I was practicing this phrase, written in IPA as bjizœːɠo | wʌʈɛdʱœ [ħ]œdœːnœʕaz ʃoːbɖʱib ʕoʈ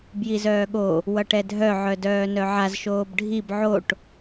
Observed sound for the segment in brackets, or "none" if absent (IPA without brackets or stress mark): ʕ